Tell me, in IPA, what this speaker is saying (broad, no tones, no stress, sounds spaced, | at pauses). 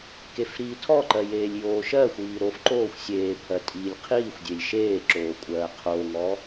k e f ɾ iː tʰ ɔ ǃ ɜ j eː lʲ j oː ʃ ɜ xʷ iː ɾ o f ǃ oː xʷ sʲ eː pʰ ɜ tʼ iː lʲ qʰ iː xʷ dʲ e lʲ ʃ eː ǁ oː kʷʼ ɜː qʰ oː ŋ ɔ